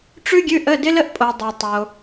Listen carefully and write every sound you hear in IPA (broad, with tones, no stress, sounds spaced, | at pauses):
ʈ͡ʂ ʉ˥ ɡʲ ʉ˧˥˧ ʔ ə˧˥˧ d ɪ˥ l ə˥ ʔ pʼ o˨ dˤ ə˨ tˤ o˨